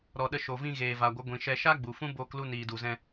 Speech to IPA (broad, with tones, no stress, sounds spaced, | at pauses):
ɾ ɔ˨ ɗ ə˧ ʃ o˨ v ĩ˧ ɣ eː˨ v a˨ ɡʷ ə˨˦ ɡʷ ĩ˨ ʃ ɛ˧ ʃ a˦ ɡ͡b u˨ f ũ˦ b oː˧ k l u˧ n iː˨ d u˨ z ɛ̃˧